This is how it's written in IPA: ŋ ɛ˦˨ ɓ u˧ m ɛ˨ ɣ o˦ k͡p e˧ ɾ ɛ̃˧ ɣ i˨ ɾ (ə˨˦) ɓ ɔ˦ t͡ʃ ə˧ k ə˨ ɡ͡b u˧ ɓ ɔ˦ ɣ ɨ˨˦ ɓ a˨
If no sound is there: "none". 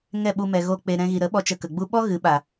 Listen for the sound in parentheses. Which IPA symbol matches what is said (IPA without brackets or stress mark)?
ə˨˦